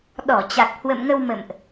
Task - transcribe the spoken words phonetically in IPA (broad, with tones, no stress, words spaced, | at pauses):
ɗɔ˧˩ t͡ɕa˨˩k̚hwə̰˧˨mŋə˧wmə̰˧˨mʔ